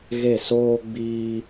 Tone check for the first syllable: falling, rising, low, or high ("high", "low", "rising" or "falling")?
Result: falling